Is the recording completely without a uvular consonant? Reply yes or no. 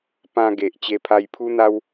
yes